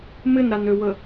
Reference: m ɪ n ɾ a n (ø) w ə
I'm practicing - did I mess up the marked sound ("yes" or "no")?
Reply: no